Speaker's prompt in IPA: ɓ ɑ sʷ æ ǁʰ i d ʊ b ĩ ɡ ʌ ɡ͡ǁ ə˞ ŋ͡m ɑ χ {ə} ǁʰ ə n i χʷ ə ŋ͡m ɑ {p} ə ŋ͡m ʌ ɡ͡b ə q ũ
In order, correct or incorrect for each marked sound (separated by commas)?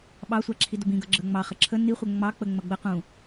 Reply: correct, incorrect